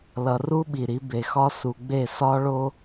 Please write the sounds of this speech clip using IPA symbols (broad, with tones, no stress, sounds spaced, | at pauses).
l ʌ˨ r u˦ ɓ i˨ ɾ i˨˦ b e˨ x ɒ˦ s u˨ ɡ͡b e˦˨ s ɒ˦ ɭ o˦